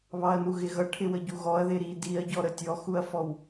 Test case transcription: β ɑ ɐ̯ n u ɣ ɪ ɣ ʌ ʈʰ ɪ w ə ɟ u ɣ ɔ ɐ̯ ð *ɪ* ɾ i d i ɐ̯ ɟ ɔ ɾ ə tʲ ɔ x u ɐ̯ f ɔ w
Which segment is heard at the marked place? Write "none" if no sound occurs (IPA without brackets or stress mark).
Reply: ɪ